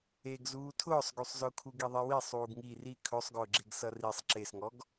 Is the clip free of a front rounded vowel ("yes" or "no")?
no